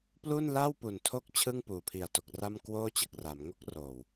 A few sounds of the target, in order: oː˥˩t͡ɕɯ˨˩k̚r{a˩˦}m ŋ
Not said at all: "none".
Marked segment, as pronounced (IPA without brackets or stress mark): a˩˦